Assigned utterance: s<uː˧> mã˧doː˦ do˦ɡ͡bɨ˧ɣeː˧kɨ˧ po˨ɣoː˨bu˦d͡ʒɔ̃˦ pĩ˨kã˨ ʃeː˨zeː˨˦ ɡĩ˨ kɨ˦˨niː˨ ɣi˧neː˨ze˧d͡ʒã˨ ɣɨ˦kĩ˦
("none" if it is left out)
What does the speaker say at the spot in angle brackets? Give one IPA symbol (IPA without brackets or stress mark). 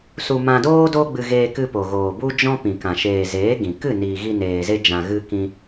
u˧